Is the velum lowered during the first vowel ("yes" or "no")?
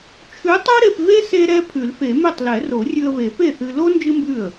no